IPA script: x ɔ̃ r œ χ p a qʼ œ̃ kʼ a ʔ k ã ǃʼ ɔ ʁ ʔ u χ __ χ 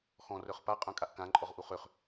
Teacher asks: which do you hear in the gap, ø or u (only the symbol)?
ø